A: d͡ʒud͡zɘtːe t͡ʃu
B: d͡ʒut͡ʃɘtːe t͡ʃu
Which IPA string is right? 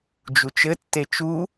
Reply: B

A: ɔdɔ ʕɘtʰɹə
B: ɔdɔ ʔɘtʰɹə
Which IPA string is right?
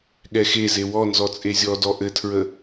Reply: B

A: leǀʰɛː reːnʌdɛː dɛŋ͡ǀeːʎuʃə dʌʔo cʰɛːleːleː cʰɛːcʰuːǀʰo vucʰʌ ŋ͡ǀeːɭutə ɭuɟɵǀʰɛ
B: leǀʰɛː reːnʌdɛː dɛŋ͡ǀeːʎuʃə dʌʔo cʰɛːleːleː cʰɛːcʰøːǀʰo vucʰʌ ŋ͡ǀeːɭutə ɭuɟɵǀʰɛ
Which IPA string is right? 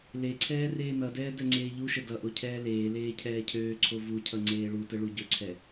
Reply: B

